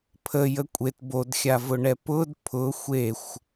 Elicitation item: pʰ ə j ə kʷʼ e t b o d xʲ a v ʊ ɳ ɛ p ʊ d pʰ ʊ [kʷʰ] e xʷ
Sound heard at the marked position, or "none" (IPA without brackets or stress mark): xʷ